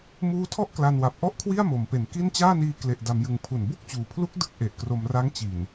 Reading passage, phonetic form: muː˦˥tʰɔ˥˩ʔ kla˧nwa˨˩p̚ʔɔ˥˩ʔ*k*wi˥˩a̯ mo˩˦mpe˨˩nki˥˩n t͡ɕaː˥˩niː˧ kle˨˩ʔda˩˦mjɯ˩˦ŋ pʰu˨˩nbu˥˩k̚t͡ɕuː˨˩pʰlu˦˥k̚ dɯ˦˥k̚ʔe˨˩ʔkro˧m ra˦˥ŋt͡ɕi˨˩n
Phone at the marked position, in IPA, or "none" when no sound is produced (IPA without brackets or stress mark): kʰ